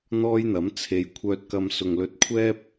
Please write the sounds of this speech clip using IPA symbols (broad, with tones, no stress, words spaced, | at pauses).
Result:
n̪ɔː˥jn̪ɐ˨˥m t͡sʰe˨jkʷʰœː˧t̚kɐ˧m sʊ˨ŋlɵ˧t̚ kʷʰɛː˥p̚